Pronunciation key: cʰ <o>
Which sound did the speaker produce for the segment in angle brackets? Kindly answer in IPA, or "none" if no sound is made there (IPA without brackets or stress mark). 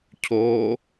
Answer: o